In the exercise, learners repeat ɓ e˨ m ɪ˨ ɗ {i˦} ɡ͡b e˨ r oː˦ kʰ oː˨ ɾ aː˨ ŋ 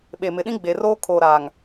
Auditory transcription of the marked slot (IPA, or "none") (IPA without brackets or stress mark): ĩ˦